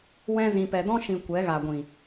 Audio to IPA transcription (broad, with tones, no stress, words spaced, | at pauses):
wɛ̃˧zĩ˨pɛ˨dɔ̃˦ ʃĩ˧ kʷɛ˨˦ɣa˨ɡʷĩ˨